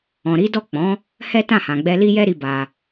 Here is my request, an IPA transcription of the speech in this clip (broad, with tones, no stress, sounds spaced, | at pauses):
ɔ̃˨ ɾ i˨˦ d ɔ˦˨ k͡p ɔ̃˨˦ | h ɛ˦ t ã˦˨ h ã˨ ɡ͡b ɛ˧ l i˦ j ɛ˦ ɾ i˧ b a˧